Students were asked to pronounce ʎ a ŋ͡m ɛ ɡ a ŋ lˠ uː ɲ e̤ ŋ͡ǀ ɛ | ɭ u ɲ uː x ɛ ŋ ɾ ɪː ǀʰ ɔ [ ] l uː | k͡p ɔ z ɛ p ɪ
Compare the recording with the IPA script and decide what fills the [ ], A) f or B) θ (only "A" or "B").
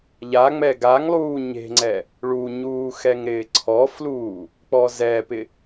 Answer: A